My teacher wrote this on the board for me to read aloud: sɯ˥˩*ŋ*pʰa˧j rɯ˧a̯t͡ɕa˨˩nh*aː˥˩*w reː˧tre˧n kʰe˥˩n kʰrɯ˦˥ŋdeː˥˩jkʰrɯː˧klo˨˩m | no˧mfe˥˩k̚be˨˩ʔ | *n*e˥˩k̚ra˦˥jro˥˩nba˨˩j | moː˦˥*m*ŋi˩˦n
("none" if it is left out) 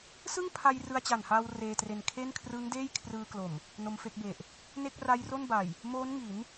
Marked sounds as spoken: ŋ, aː˧, n, n

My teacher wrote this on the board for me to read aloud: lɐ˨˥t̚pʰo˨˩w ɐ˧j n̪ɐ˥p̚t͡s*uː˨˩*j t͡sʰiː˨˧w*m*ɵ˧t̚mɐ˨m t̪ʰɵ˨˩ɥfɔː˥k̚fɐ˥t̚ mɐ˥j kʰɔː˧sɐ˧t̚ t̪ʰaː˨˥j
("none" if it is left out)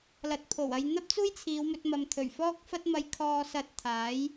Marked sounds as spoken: uː˥, m

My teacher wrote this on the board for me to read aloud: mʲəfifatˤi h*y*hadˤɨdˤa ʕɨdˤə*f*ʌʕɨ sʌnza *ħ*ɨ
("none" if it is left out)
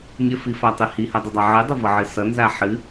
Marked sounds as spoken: i, v, ħ

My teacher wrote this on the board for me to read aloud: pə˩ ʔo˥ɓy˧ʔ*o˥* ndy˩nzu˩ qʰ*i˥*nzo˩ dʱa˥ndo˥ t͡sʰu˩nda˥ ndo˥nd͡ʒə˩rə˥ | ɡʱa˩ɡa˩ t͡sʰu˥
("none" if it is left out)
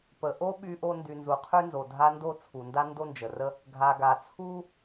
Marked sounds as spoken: o˧, y˥

